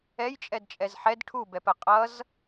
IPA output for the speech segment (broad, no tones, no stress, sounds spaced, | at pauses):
ɛ j t͡ʃʼ ɛ d t͡ʃʼ ɛ z ħ ɛ d ʈʰ u b ɛ p ə qʼ ʌ z